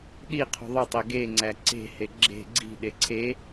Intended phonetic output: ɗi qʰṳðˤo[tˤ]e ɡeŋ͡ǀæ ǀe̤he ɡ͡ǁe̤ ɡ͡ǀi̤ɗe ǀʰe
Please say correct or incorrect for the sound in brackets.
correct